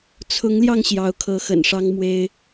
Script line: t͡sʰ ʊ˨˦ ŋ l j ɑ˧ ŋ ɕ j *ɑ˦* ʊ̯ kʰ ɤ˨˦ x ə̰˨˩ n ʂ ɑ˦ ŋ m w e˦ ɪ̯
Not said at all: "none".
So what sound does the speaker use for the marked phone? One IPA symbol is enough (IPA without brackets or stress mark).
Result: ɑ˨˦